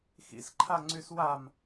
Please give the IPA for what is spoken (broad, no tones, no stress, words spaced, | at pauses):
xḭsǃʰaŋ͡ǀys wam